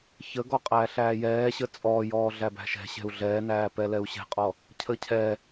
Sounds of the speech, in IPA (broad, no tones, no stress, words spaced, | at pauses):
çəɡɔ qʼæːɬæːjɛːɕə t͡sʼɔːjɔː ɮæbæ̤ʃɛ̤ ɕɛ̤u̯ɮɛːnæːpɛ lɛu̯ɕɛ̤qʼɔ | cʰəːcʰɛ